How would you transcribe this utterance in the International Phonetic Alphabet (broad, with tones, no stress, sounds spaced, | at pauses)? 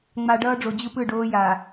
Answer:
ŋ͡m a˨ ɖ ʌː˦ ɖ͡ʐ o˨ d͡ʑ ɯ˦ p ɯ˦˨ ɖ oː˦ j a˨